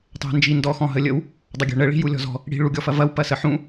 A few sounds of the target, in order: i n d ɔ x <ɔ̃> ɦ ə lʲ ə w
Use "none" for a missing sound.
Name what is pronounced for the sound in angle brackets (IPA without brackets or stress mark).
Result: ɔ̃